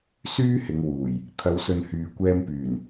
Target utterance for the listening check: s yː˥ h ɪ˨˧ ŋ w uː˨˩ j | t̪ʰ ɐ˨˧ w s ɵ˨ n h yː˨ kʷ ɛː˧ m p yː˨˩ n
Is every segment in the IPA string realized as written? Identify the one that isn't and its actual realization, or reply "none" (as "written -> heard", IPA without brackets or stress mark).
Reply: none